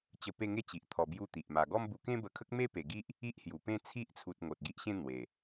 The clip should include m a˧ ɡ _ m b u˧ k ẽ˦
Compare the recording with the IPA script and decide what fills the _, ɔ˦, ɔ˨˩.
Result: ɔ˦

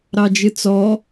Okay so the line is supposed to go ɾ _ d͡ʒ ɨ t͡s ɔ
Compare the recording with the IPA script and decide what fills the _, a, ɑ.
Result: ɑ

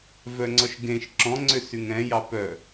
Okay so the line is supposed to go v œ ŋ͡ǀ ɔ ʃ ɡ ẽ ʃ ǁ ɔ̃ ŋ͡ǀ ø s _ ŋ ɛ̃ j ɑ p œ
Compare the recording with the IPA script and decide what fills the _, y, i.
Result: y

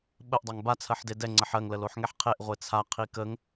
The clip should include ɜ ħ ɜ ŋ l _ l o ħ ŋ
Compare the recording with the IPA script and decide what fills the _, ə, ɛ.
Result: ə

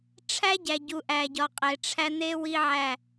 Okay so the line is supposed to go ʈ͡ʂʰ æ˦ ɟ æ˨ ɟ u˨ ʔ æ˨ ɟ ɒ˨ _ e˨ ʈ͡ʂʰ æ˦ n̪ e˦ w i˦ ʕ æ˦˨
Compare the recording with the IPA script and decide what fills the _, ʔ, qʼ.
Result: qʼ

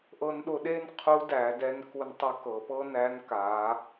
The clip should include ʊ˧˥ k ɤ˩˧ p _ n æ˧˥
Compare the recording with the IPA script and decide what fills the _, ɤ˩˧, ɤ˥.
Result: ɤ˥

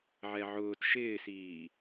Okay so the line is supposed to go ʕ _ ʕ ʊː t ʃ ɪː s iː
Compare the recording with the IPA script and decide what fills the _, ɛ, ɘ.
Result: ɛ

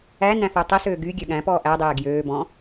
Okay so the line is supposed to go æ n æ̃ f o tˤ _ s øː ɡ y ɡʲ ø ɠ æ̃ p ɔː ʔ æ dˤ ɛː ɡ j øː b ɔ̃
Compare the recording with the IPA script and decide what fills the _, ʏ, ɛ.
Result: ɛ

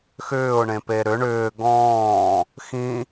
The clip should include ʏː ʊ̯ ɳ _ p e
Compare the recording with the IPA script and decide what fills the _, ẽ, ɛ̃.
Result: ẽ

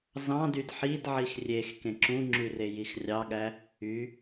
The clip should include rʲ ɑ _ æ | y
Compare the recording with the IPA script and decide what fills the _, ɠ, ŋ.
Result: ɠ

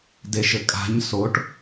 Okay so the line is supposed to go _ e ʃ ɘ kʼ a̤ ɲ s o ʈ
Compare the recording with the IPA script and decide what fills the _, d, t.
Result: d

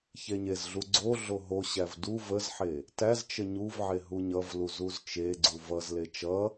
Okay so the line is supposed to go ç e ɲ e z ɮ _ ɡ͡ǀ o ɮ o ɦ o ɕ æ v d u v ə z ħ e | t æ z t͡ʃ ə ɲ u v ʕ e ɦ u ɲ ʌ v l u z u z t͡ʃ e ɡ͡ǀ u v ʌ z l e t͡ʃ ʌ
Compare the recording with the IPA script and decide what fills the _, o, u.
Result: u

